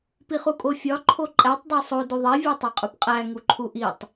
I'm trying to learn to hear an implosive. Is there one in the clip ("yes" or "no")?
no